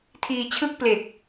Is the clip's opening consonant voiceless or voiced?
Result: voiceless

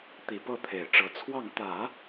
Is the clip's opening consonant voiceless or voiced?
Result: voiceless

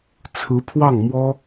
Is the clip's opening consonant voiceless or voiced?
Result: voiceless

